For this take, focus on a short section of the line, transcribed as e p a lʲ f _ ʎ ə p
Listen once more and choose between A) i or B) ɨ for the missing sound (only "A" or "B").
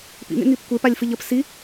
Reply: B